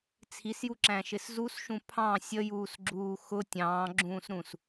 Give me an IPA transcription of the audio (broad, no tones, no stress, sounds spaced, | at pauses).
t͡sʰ i s j u ǁ æ̃ ʃ ɪ s z u s ʃ ũ pʰ ɑ̃ sʲ ə j uː s ɡ͡ǁ uː x ʊ tʲ ɑ̃ː ɡ͡ǁ ũː s ɾ ũ s